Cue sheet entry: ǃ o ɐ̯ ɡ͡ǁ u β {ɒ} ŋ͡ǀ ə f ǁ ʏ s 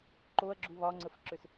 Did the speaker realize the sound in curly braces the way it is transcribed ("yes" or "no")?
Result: yes